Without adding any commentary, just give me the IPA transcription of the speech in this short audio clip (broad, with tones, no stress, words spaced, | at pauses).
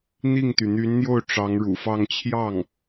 n̪i˥˩ŋt̪y˩ n̪y˧˥nn̪jo˥˩ʊ̯ ʈ͡ʂɑ˧˥ŋɻṵ˨˩fɑ˥˧ŋ t͡ɕʰjɑ˥˩ŋ